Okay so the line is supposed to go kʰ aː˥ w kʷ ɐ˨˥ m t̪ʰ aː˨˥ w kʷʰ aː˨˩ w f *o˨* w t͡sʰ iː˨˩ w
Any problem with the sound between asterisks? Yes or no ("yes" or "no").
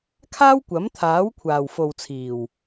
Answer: no